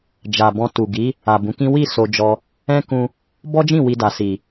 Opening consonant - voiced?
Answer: yes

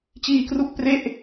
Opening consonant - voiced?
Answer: no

